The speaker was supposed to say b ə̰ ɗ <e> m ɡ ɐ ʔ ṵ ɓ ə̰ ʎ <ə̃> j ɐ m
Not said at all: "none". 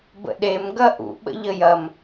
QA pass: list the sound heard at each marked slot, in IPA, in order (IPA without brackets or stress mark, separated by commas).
e, ə